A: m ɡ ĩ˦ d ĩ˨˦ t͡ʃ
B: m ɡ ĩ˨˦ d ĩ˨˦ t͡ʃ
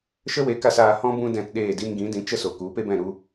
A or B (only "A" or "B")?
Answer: B